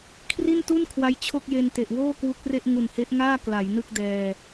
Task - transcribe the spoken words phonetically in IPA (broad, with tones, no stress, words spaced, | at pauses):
kʰri˥˩ntu˥˩nkʰwa˦˥j t͡ɕʰo˥˩k̚je˧n te˨˩ʔwoː˥˩kwu˦˥k̚re˥˩ʔ ŋu˨˩nhe˦˥ʔŋaː˥˩ kla˩˦jnɯ˥˩k̚ dɛː˧